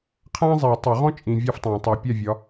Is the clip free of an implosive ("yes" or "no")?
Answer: yes